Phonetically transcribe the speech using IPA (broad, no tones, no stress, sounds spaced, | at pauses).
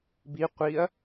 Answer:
b i qʷ i ɐ̯